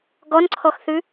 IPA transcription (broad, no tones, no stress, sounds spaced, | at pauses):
ɡ ɔ n ǀʰ ɔ x θ ʉ